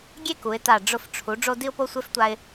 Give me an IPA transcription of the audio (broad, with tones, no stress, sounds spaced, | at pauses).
ɡʲ e˥˧ k u˩˧ ɪ̯ t a˧˩ ɖ͡ʐ ʊ˧˩ f ʈ͡ʂʰ u˩˧ ɖ͡ʐ o˧ d i˧ ʊ̯ p o˧ sʷ e˧ f tʷ a˧ ɪ̯